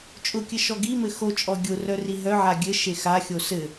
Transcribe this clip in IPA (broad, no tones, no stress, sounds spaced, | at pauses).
t͡ʃʼ ʊ kʲ ɘ ʃ ɔ ɡ i m ɘ x o t͡ʃʼ ɔ ɡʲ ʊ r œ r i ɦ œ ʕ a ɡʲ ɘ ʃ e x a xʲ o s ɘ